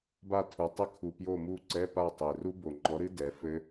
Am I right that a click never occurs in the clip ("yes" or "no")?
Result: no